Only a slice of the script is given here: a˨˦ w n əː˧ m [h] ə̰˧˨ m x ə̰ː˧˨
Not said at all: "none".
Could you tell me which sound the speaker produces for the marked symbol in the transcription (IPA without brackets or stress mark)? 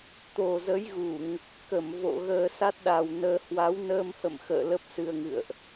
h